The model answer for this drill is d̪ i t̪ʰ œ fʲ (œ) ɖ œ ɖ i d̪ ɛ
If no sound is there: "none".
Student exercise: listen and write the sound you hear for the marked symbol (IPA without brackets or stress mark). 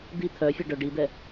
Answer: ɛ